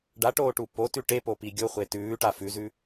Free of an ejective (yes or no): yes